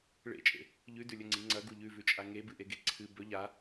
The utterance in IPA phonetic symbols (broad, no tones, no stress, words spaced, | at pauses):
ɭḛt͡ʃʼḛ | ʎʉdʉlʲɵŋ͡ǀi ŋ͡ǀɐɡu ʎʉvʉt͡ʃʼa ŋebɨʔeɡe ǀʰɨ bɵ ʎa